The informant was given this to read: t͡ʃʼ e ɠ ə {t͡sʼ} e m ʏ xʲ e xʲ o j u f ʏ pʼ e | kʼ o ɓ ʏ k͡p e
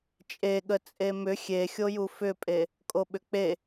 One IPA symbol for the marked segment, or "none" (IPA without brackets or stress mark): t͡sʼ